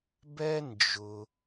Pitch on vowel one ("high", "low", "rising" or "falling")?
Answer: high